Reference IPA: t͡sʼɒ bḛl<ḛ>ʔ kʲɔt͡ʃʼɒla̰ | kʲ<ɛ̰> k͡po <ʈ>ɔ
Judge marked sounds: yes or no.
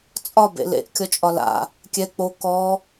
yes, no, no

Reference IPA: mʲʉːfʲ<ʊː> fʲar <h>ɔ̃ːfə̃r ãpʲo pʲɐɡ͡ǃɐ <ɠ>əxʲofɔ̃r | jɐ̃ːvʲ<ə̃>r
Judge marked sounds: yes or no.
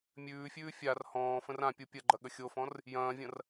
no, yes, yes, no

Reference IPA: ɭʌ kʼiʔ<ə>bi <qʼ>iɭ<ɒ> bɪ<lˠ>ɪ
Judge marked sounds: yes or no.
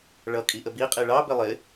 yes, yes, no, yes

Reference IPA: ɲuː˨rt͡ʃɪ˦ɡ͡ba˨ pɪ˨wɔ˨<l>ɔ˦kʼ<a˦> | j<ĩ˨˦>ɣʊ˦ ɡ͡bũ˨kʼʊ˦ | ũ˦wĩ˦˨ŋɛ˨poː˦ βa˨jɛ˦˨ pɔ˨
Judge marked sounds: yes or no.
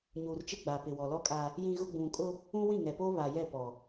yes, yes, no

